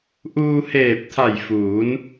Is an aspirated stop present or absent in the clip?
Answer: present